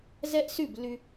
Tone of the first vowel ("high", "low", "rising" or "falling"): high